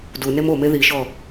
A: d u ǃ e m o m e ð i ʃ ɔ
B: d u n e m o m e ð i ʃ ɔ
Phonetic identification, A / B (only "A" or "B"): B